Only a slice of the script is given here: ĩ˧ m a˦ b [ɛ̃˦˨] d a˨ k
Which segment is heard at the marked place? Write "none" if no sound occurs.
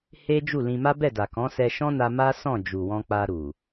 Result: ɛ˦˨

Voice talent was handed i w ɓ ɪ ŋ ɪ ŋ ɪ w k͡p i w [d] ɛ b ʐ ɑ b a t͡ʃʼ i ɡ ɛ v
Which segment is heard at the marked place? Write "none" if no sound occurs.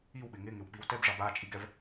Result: t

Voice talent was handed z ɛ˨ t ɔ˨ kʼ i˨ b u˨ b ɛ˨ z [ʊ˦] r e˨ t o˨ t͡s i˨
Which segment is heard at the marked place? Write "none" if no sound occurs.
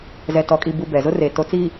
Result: ʊ˦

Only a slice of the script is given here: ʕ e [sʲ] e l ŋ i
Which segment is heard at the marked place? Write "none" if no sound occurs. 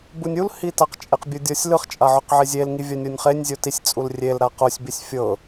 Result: zʲ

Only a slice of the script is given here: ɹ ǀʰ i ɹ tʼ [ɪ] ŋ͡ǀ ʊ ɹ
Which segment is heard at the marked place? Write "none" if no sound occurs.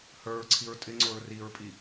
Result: ɪ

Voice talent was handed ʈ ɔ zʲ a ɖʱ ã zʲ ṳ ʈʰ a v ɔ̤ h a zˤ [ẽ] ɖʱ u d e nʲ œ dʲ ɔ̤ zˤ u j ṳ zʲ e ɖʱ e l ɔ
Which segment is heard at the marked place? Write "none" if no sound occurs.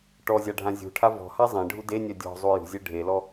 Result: ẽ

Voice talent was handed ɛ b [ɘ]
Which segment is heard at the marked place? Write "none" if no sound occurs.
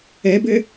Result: ɘ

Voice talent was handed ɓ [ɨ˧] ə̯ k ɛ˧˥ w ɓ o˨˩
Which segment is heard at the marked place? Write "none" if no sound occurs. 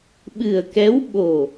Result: ɨ˨˩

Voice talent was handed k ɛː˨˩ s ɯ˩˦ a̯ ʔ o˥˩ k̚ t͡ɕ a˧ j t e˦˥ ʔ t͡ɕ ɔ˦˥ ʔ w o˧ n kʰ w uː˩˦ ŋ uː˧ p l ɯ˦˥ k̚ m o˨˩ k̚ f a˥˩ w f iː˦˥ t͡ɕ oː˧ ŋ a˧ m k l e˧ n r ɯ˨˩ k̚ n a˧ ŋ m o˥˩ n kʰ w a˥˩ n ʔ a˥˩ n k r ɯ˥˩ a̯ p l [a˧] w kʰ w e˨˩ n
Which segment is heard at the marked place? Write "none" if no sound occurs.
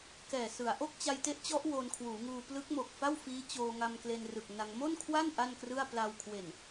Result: a˧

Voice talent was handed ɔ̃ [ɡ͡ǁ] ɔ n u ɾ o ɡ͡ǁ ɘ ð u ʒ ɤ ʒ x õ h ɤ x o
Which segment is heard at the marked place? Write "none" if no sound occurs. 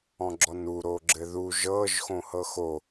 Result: ɡ͡ǁ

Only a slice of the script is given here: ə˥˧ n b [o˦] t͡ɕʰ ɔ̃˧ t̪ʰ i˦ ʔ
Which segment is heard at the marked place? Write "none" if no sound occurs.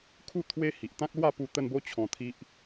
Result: o˦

